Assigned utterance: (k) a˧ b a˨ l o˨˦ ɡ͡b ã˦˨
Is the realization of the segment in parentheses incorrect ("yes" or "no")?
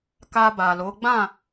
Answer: no